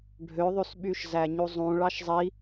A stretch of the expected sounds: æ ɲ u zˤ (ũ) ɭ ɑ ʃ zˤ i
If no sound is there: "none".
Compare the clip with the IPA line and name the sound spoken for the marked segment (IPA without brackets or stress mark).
ũ